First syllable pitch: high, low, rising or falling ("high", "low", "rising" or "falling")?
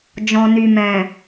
low